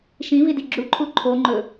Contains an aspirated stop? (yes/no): yes